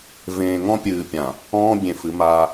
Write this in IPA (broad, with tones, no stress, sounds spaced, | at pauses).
v ẽː˨ ŋ ɔ̃˦ pʲ ɨː˨ pʲ ã˨ | ɔ̃ː˦ bʲ ẽ˨ f ɨ˨˦ m aː˦